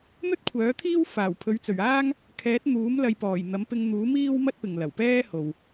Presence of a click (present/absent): absent